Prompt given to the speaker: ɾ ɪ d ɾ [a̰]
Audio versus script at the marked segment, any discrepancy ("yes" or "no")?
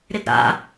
no